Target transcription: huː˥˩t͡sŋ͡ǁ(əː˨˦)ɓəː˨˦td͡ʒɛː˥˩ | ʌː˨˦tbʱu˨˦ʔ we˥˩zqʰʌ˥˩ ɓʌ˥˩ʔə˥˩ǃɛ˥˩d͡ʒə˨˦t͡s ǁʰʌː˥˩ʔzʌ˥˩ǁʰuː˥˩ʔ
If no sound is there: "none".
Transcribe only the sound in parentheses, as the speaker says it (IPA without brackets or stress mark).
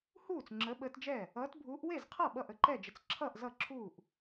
əː˨˦